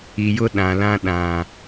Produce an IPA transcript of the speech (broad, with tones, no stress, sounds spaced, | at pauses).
i˨ j ʊ˦ ɗ ã˨ l ã˦ ɗ ã˨